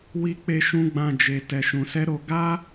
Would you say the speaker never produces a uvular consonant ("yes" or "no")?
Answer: yes